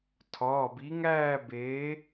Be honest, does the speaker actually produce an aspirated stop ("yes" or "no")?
yes